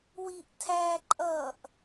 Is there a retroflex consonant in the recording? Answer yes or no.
no